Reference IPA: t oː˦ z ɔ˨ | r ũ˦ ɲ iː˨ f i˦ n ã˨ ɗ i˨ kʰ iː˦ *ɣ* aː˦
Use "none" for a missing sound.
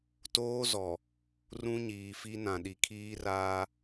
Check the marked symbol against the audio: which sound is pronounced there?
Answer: r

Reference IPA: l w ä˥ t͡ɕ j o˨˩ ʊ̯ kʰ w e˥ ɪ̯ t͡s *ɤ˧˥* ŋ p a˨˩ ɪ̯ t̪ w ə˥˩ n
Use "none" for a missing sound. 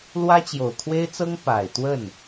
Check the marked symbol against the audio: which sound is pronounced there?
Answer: ɤ˥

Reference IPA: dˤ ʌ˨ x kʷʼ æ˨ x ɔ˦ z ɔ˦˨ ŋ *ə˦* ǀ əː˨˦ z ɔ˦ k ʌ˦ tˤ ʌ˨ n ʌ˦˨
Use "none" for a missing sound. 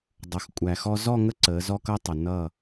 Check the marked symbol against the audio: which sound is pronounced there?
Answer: ə˦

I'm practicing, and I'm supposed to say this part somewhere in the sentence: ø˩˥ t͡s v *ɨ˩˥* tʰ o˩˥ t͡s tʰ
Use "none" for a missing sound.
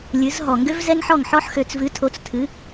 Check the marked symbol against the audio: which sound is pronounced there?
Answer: ɨ˩˥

